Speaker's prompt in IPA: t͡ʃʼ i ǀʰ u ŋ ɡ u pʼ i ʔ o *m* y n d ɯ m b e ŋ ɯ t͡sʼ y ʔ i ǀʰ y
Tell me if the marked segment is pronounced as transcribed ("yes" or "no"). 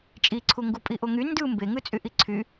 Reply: no